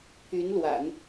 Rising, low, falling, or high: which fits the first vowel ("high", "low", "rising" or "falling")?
rising